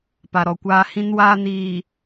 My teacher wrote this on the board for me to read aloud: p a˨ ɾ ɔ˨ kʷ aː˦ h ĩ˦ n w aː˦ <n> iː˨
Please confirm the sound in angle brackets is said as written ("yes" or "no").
yes